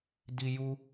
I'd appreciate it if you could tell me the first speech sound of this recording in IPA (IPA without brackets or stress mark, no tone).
d